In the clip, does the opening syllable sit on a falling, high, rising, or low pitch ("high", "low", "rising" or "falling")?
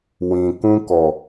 low